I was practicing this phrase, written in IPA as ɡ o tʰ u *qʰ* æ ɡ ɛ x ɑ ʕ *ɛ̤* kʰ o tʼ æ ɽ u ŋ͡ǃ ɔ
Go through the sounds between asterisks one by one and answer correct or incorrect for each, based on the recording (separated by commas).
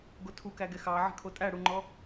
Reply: incorrect, correct